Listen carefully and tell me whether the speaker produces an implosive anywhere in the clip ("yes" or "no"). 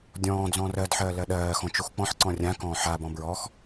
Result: yes